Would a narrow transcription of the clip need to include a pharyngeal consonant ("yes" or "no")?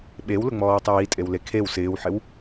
yes